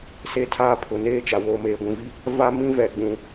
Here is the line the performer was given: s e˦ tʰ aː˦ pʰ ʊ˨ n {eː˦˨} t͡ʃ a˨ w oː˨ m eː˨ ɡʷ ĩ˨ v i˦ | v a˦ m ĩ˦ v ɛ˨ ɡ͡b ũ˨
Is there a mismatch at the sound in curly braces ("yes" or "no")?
no